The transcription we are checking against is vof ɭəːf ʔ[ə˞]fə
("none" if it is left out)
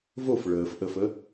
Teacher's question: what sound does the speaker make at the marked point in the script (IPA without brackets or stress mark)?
ə